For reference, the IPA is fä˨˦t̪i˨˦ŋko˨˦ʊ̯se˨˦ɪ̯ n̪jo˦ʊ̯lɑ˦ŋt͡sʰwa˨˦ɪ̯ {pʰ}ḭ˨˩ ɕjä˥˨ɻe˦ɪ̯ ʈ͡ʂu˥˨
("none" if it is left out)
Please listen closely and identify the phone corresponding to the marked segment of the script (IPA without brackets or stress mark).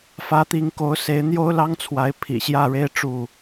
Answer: pʰ